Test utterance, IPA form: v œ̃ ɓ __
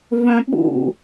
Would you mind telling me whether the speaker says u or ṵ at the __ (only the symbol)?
ṵ